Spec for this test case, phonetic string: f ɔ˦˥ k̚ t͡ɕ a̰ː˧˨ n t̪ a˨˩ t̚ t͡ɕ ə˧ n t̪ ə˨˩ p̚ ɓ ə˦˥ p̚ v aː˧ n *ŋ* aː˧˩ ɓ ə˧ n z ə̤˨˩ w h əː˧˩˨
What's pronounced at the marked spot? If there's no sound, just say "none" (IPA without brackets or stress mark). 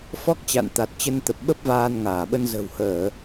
ŋ